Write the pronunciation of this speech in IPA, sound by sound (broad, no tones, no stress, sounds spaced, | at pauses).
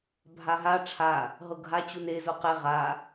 bʱ a ɦ a ʈ͡ʂʰ a | ɦ ɤ ɡʱ a t͡ɕ u n e z u q e ʁ a